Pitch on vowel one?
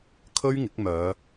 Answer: high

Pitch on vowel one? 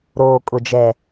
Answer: low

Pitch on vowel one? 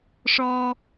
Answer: low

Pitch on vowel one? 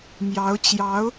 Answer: rising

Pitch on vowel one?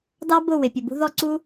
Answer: high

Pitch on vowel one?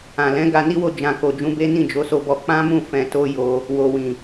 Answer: low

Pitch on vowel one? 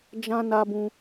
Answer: high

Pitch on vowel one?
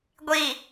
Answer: low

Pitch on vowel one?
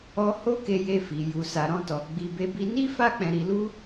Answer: high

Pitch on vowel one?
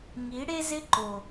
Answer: rising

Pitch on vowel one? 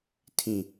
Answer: low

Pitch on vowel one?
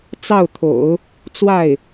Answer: falling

